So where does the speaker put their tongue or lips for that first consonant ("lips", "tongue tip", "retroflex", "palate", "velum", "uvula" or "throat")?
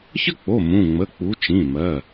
palate